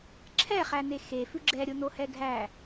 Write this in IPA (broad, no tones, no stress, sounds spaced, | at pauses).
ǁʰ ɛ χ æ n e x e f ʉ ɡ͡ǁ ɛ ɾʲ o n o h ɛ ɡʱ æ